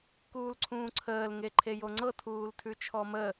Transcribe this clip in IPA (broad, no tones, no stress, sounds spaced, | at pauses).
k uː l ǀʰ ũː ǀʰ əː l ŋ e ǃʰ e j o ŋ͡ǀ ɤ tʰ uː l tʰ ʉ t͡ʃʰ ɔ m ə